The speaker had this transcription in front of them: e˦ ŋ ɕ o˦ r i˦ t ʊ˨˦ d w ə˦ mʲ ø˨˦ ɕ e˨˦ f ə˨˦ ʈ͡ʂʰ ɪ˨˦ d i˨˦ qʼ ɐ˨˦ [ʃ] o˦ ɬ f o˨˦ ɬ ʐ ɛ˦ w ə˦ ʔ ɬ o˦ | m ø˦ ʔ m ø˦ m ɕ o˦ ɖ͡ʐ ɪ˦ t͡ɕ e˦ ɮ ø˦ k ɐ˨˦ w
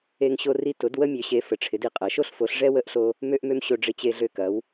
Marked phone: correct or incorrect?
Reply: correct